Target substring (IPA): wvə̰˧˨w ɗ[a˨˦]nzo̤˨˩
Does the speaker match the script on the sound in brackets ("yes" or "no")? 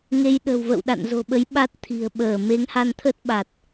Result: no